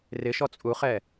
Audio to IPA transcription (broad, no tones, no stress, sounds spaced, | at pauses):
r ɪ ʃ ɔ t͡sʼ u χ ɛ